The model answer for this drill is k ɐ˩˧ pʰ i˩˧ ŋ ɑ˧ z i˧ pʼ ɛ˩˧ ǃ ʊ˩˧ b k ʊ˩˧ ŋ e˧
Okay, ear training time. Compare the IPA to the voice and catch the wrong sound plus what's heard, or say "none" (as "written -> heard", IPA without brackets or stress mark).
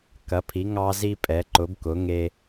none